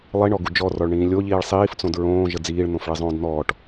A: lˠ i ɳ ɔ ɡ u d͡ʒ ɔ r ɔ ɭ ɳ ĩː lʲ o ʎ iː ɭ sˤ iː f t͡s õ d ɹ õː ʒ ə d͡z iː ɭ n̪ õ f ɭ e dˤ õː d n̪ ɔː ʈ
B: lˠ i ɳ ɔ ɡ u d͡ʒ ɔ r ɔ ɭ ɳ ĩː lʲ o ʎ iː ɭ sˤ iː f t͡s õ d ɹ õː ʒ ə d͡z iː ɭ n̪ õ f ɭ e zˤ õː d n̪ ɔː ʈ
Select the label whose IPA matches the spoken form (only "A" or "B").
B